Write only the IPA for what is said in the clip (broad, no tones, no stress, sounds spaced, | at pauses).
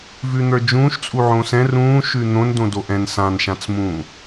v ʉ n̪ ə˞ d͡ʒ ũː ʃ t͡sʼ u ʕ õ s ɛ̃ r ũː ʃ ʉ n̪ õ n d õ d o ʔ ɛ̃ n s ã n ʃ ã t͡s m ũː